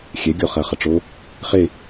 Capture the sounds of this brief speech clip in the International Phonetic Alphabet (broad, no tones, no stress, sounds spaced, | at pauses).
xʲ ɛ ɡʲ ɔ χ ɐ χ ɐ ʈ͡ʂ o | χ e